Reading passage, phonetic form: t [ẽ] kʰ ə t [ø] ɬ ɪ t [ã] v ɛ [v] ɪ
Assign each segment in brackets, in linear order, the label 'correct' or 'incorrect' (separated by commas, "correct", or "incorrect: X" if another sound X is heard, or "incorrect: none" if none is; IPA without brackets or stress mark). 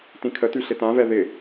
incorrect: ĩ, incorrect: y, correct, incorrect: ð